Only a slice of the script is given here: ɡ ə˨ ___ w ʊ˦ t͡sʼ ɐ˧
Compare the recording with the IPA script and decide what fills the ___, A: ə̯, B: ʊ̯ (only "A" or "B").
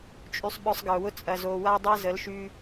B